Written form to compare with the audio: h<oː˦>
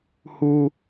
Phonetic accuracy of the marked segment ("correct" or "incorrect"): incorrect